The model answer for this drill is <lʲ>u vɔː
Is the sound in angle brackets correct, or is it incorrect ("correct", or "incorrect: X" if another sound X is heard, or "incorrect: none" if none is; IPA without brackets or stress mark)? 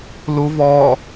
incorrect: l